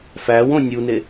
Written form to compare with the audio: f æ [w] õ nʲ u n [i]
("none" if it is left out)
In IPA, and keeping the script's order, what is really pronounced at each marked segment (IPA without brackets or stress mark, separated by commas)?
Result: w, e